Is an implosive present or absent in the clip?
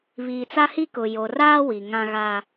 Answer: absent